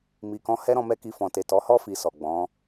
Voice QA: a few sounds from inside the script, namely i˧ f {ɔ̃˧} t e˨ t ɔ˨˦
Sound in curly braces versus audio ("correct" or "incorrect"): incorrect